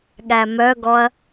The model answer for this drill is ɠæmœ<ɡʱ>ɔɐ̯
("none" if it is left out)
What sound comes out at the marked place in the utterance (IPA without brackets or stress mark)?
ɡ